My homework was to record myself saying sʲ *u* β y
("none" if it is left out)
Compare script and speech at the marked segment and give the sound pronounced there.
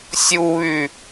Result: u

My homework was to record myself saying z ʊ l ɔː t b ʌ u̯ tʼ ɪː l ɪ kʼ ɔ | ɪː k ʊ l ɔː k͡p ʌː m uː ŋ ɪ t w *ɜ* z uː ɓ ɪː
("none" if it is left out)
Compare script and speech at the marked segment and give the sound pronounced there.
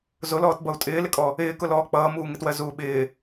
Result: ɜ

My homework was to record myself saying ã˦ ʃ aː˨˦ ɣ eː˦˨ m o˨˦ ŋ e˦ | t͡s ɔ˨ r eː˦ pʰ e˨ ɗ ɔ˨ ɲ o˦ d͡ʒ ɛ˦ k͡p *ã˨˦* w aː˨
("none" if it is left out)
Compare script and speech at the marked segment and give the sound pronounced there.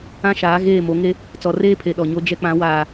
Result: ã˨˦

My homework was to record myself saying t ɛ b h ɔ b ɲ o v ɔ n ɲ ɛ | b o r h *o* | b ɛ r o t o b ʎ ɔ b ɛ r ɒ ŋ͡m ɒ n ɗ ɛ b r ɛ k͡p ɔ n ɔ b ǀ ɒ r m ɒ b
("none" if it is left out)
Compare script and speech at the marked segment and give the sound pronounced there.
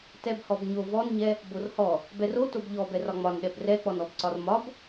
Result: ɔ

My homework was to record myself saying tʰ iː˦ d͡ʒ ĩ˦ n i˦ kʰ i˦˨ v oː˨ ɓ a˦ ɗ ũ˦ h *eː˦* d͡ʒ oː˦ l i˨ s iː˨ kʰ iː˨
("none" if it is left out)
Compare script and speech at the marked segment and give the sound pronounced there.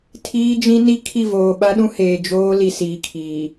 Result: eː˨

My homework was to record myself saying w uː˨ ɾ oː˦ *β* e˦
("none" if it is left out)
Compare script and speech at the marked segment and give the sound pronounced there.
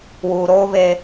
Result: β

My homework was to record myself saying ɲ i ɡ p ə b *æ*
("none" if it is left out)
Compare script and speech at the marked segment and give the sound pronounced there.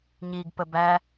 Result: æ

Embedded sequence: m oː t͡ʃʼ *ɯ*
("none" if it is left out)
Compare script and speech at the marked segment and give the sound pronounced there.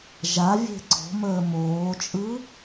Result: ɯ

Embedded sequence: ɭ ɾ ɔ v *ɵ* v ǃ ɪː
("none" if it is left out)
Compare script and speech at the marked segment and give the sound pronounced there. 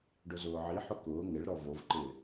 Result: o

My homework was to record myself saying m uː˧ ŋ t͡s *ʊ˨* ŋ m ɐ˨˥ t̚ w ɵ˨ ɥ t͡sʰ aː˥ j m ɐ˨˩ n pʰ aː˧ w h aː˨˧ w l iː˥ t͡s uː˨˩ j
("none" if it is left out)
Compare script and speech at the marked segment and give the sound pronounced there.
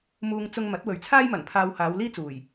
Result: ʊ˧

